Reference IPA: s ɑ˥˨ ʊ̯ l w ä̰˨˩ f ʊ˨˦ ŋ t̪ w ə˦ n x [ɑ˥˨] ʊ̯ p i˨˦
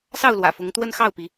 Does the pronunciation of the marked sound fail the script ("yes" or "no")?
no